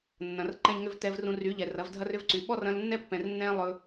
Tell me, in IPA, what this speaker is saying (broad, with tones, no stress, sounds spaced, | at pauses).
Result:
nː ɐ̃˨ r ǃ ɛ̃˧ ʎ ŋ ʏ˧ v t ɛ˧ v r ũ˧ r y˨˦ ʎ ɛ˨ r ɐ˨˦ v dʱ ɐ˦ r ʏ˦ v ǀ y˨ ɓ ɔ˦ r ɐ̃˧ l nː ɛ˦ pː ɛ̃˨ r nː ɛ̃˦ lˠ ɵ˧